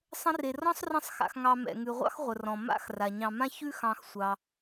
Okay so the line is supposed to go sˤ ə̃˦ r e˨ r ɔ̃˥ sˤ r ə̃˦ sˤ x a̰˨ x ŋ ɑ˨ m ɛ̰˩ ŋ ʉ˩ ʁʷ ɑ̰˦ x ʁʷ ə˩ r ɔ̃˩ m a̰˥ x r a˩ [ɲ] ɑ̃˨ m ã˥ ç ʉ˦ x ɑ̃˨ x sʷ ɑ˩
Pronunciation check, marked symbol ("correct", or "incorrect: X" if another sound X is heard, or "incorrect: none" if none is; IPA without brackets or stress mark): correct